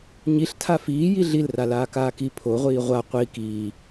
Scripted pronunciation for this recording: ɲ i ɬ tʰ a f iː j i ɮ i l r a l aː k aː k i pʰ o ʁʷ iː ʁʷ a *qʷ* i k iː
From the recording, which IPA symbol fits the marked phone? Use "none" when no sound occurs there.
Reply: qʷ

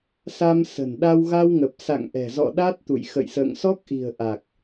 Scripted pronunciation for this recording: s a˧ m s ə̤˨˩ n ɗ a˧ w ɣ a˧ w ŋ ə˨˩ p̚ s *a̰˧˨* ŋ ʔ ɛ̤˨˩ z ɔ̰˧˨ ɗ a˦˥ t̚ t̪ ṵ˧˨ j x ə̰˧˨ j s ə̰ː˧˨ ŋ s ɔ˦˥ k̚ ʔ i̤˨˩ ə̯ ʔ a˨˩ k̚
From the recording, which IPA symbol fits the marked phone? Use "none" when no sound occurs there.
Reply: a̰˧˨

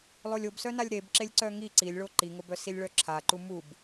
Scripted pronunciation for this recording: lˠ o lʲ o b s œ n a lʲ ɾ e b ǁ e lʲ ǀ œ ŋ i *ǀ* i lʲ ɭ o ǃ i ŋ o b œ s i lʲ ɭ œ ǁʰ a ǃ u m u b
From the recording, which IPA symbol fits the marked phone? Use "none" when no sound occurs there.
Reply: ǀ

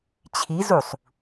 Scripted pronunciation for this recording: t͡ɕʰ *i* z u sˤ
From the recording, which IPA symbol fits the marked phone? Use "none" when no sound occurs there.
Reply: i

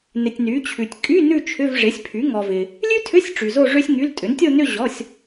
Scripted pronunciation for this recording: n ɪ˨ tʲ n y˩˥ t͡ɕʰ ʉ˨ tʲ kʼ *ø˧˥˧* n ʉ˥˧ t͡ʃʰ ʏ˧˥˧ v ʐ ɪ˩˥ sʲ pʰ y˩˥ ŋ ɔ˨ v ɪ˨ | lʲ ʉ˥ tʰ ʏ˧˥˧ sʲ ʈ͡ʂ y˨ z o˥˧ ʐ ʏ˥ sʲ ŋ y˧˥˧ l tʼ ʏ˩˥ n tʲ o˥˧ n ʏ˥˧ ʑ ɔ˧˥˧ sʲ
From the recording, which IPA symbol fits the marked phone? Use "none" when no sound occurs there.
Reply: y˧˥˧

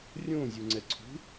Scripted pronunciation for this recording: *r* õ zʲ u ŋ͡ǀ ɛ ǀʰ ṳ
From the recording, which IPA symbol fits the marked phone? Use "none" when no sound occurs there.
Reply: rʲ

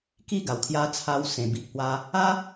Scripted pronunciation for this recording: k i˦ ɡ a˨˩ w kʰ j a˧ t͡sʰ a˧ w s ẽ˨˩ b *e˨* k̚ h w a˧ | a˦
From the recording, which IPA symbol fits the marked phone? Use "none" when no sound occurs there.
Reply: i˨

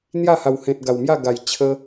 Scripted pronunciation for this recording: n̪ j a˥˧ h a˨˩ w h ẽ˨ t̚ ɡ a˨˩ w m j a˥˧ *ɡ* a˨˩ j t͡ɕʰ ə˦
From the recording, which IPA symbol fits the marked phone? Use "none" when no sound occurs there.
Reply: ɡ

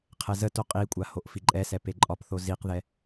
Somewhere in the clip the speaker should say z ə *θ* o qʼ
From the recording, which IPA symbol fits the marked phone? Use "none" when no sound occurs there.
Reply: t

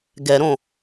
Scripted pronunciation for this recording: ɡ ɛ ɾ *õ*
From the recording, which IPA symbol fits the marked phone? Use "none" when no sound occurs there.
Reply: õ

